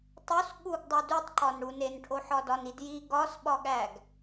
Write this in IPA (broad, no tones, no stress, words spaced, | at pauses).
tˤos ɠuɡdˤu dutˤǃɒnɽu nenʈʰoħɒ dɒnidji ɡɒsɓɒɠæɡ